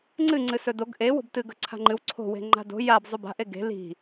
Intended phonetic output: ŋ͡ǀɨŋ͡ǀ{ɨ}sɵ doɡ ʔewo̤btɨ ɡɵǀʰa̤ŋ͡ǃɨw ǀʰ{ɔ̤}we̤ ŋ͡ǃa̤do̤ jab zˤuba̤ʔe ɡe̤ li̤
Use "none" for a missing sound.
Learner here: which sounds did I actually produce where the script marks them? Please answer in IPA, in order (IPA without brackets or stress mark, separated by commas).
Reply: ɨ, o̤